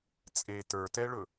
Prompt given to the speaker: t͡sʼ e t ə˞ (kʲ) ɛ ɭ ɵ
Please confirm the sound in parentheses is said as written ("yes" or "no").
no